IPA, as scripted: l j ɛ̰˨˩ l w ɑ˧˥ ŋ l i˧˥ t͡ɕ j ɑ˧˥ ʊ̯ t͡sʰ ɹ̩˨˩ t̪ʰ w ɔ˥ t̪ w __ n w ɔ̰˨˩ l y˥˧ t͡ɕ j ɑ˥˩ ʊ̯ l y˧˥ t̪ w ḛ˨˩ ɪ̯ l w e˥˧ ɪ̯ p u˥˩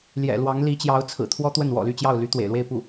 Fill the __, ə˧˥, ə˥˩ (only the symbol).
ə˥˩